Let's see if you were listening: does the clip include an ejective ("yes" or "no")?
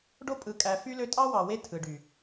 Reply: yes